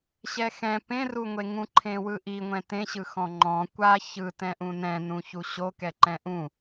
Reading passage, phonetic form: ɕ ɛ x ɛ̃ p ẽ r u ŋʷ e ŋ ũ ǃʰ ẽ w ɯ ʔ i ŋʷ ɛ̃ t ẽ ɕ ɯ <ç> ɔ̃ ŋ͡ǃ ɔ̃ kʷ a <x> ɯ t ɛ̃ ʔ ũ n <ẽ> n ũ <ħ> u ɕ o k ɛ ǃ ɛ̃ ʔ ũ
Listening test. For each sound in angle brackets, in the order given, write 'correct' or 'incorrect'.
incorrect: x, incorrect: ç, incorrect: ɛ̃, incorrect: ç

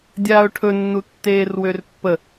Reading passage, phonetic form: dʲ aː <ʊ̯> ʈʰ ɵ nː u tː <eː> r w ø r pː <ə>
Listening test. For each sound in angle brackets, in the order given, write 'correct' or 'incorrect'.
correct, correct, correct

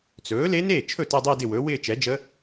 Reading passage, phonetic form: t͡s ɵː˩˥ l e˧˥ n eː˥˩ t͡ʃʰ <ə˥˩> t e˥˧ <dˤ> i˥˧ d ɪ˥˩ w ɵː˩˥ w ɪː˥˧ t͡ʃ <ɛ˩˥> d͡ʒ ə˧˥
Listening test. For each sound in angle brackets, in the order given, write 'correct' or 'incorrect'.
incorrect: ɵ˥˩, correct, correct

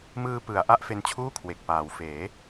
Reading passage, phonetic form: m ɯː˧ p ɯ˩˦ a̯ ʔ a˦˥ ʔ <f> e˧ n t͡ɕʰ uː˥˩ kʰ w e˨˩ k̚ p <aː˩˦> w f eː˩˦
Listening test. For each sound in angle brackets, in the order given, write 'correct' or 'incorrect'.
correct, correct

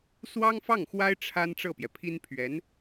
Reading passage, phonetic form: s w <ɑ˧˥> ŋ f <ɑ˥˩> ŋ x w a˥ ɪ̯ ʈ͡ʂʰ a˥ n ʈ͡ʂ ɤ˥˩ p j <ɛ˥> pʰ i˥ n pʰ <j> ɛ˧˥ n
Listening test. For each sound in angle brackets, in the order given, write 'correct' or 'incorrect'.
incorrect: ɑ˥, correct, incorrect: ɛ˩, incorrect: ɥ

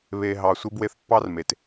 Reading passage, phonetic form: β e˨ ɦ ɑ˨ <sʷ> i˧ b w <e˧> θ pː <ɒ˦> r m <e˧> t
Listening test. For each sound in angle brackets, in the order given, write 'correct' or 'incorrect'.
correct, correct, incorrect: ɑ˦, incorrect: e˨

